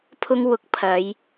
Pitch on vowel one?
high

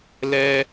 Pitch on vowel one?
high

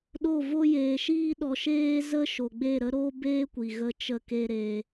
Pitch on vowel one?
falling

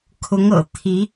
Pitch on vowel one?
rising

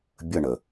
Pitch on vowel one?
falling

